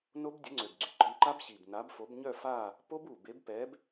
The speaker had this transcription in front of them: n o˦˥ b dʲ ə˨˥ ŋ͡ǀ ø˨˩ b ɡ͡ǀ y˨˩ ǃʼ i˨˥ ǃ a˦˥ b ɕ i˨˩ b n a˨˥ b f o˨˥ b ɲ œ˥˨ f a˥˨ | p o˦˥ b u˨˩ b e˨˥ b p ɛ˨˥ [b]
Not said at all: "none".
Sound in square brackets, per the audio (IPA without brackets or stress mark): b